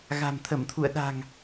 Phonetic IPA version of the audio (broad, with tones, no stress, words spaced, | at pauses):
ɣa̤˨˩mt̪ʰə˧˩mt̪ʰṵ˧˨ə̯ ɗa̤˨˩ŋ